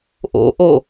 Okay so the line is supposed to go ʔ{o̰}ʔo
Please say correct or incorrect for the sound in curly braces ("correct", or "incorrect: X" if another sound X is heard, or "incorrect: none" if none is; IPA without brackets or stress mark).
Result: correct